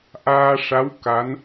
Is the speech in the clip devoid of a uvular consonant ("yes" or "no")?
yes